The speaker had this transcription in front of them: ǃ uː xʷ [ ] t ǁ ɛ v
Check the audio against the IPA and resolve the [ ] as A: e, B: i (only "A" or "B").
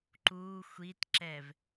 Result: B